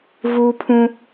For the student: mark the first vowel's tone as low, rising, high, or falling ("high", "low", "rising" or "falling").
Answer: high